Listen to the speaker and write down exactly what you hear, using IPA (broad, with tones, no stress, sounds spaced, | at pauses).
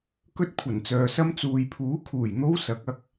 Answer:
k ɵ˥ t̚ kʷʰ ɐ˨˩ n t͡s œː˨ s ɐ˥ m t͡s uː˨ j pʰ uː˨˥ kʰ uː˨˩ j n̪ o˥ w s ɐ˨˥ k̚ ɐ˧ k̚